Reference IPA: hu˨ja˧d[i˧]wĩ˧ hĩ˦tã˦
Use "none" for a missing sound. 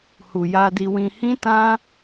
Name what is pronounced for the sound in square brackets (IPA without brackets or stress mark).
i˧